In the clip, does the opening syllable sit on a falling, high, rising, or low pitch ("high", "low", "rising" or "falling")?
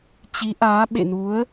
rising